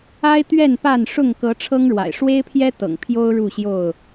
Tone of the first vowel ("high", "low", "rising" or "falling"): high